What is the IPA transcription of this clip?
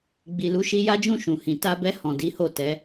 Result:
ɡ͡b i˨ l u˨˦ ʃ i˧ j a˦ d͡ʒ ũ˦˨ ʃ ũ˨ h ĩ˨ t a˧ b ɛ˧ h ɔ̃˨ d i˨˦ h o˦˨ t ɛ˨˦

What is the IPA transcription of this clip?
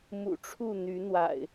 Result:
m ṵ˨˩ ʈ͡ʂʰ u˥˨ n̪ y˨˦ n̪ w a̰˨˩ ɪ̯

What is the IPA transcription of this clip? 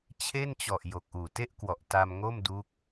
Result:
t͡ɕʰ e˥˩ n t͡ɕ ɔ˨˩ ʔ j o˨˩ k̚ ʔ uː˨˩ t e˥˩ ʔ k w ɔ˨˩ ʔ t a˧ m ŋ o˥˩ m d u˦˥ k̚

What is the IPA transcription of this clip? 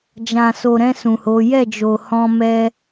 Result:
d͡ʒ ã˨ s o˨ ɾ ɛ̃˧ s ũ˨ h o˨˦ j ɛ˦˨ d͡ʒ o˨ h ɔ̃˧ m ɛ˧

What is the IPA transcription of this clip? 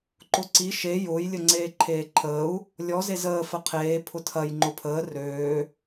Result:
ǃ ʊ ǀ i ʃ e j ʊː j lʲ ə ŋ͡ǀ eː ǃʰ eː ǃʰ əː u̯ | lʲ ɔ z e z əː f ə qʰ eː pʰ ʊ tʰ ɐ j ŋ͡ǃ ʊ pʰ əː r øː

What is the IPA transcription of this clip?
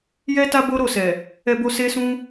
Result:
j ɛ˦ t a˦ b o˦ ɾ o˦˨ s ɛ˨ | ɛ˧ b o˧ s e˦ s ũ˦

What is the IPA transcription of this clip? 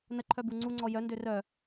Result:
n ə ǃʰ œ b u ŋ͡ǀ u ŋ͡ǀ ɔ j œ n d ø r œ

